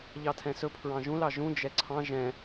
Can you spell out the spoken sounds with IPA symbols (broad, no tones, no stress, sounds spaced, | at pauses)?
ʎ ɑ tʰ ɛ̃ s ɵ pʰ ɹ ɑ̃ ʒ ũ l ɑ ʒ ũ d͡ʒ ɛ ǀʰ ɑ̃ ʒ ɛ̃